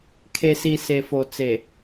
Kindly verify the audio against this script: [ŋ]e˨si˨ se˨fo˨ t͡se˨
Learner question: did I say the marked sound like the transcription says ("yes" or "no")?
no